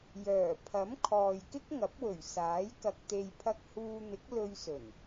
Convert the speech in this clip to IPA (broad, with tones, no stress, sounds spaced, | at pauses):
j œː˨˩ pʰ ɐ˨˥ m kʰ ɔː˨ j k ɪ˥ k̚ ŋ ɐ˨˥ p̚ w ɵ˨˩ ɥ s aː˨˥ j k ɐ˧ k̚ t̪ e˧ j pʰ ɐ˧ k̚ h uː˧ n̪ ɪ˨˥ k̚ l ɵ˧ ɥ s ɵ˨˩ n